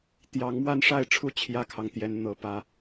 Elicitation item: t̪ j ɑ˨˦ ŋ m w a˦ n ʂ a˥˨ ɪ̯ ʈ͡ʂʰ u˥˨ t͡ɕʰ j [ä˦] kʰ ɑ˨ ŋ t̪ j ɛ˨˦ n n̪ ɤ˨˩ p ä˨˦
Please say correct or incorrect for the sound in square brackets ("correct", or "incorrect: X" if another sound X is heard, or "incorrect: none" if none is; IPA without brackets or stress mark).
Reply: correct